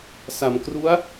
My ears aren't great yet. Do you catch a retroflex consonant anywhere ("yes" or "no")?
no